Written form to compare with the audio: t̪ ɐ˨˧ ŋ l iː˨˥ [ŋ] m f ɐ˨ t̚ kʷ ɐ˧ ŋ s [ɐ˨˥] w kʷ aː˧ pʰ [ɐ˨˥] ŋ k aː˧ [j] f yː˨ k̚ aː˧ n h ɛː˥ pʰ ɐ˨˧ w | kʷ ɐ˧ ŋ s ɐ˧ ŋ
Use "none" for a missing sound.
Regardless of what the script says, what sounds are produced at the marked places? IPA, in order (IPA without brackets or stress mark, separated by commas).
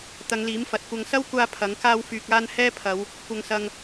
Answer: none, ɐ˥, ɐ˨˥, w